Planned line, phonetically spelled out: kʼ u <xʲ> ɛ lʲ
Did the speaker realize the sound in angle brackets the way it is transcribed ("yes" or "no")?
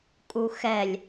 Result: no